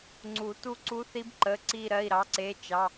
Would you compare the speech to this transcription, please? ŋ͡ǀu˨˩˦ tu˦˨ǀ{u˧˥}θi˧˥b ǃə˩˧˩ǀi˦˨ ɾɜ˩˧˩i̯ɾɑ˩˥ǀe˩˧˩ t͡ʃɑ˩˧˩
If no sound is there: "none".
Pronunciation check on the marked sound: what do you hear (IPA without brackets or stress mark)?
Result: u˧˥